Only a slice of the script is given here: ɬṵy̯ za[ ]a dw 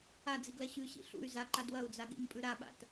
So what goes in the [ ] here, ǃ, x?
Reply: ǃ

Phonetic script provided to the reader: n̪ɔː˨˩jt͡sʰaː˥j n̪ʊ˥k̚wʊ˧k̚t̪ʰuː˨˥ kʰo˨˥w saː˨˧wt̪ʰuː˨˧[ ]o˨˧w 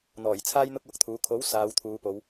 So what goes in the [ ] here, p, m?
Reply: p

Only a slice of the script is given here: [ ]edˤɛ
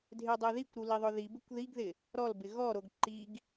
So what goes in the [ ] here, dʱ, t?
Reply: dʱ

